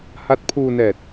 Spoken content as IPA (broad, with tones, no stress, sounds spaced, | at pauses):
h a˦˥ t̚ pʰ uː˧ n ɛː˨˩ t̚